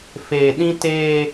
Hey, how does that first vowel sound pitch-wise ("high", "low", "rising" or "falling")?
low